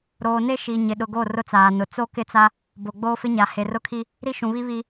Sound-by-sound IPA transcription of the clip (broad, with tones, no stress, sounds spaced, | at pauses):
ɾ oː˨ n e˦ ʃ i˨ ɲ ɪ˨ ɗ ʊ˨ ɡ o˦˨ r ʊ˦ t͡s aː˨ n ʊ˨ t͡s o˦ k ɪ˦ t͡s a˦ | b o˨ ɡ͡b oː˦ f ɪ˦ ɲ a˨ h e˨ r ʊ˦ kʰ i˦ | ɾ i˦ ʃ ũ˨ β i˦ β i˦